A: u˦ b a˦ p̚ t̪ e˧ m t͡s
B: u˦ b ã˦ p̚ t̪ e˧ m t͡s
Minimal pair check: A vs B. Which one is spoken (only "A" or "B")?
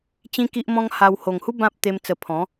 B